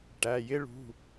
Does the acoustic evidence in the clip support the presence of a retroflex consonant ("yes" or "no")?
yes